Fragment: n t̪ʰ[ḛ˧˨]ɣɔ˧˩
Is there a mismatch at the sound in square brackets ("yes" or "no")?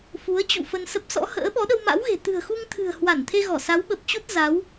yes